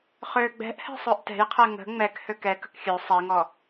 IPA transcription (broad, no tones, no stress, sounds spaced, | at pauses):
χ ø ɡ͡b ɛ̤ ʔ h ɛ̤ sˤ ø ʔ t ɛ̤ j qʰ ɛ ŋ ə̤ ŋ͡m ɛ k h ø k ɛ k ə̤ k xʲ ø sˤ ɛ ŋ ɔ